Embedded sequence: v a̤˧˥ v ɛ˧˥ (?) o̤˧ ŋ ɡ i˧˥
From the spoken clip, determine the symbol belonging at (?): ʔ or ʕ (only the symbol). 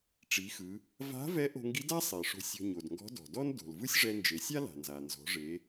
ʔ